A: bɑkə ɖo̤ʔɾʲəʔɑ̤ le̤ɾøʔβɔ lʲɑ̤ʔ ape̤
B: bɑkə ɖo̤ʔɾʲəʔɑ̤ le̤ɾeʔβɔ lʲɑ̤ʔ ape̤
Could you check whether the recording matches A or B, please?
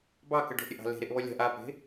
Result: B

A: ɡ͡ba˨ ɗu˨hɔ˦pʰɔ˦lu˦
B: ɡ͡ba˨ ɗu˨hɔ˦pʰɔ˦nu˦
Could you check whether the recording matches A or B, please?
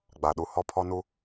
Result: B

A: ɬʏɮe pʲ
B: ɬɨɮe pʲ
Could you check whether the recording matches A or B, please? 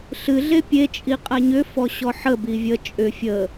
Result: B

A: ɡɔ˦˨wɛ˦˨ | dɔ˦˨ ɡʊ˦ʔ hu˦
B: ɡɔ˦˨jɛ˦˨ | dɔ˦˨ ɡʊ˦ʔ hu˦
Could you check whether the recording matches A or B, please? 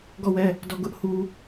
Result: A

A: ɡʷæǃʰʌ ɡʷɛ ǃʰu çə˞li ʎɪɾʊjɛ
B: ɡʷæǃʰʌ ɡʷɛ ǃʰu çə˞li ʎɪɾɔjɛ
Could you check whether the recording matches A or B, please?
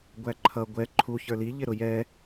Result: A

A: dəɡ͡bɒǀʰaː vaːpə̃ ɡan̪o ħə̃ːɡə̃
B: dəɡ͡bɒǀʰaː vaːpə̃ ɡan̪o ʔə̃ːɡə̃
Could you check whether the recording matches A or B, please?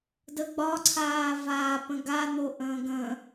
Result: B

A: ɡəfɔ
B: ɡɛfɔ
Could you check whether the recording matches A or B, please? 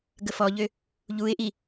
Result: A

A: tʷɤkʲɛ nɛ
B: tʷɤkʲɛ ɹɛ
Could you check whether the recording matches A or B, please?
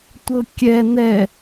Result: A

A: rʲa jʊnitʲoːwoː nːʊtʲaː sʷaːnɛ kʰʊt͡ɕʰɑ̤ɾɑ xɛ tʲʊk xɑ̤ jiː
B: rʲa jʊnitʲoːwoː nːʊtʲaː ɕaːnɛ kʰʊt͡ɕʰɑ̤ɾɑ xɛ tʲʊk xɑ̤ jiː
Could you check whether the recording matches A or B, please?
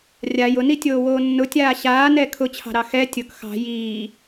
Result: B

